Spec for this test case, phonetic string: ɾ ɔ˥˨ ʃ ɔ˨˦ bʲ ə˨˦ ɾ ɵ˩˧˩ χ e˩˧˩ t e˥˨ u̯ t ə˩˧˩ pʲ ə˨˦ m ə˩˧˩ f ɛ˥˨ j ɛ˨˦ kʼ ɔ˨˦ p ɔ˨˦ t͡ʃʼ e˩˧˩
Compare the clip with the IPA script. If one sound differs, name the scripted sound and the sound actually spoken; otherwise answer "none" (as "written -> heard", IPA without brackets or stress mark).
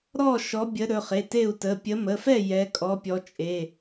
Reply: p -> pʲ